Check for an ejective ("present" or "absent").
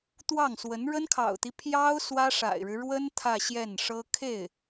absent